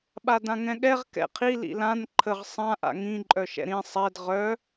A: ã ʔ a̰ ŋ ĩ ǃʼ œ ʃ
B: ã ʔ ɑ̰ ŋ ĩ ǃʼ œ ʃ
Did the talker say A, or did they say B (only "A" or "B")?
A